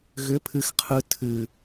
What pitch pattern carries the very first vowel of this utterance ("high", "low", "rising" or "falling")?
rising